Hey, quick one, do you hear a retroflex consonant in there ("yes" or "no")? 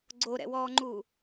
no